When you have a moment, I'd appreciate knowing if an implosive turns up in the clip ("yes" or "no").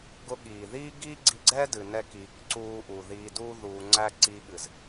yes